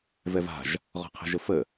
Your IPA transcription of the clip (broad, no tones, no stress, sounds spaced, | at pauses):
v ɛ v a̤ ʒ | ʁ ɔ̤ qʰ ɛ̤ ʒ ə f ə